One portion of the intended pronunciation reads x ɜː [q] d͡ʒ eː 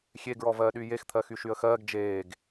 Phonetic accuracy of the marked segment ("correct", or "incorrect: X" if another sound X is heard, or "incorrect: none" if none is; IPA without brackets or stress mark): incorrect: ɡ